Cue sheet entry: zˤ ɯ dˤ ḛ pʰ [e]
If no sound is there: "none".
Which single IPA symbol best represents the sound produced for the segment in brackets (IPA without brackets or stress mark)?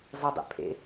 ḛ